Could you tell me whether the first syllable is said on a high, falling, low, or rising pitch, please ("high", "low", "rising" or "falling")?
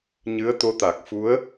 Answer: rising